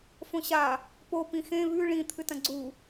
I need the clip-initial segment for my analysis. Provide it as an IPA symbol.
f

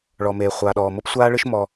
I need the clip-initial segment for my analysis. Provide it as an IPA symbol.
ɭ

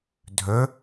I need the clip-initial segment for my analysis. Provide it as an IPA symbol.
dʱ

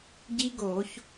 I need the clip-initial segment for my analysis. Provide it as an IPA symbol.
ɟ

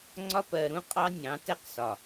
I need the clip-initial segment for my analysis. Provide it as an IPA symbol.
ŋ͡ǀ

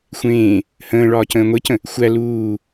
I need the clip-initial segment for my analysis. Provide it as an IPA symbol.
xʷ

